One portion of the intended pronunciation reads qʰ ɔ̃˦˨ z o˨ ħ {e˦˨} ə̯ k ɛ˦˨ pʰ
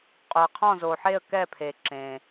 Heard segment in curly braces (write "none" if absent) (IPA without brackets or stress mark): e˦˨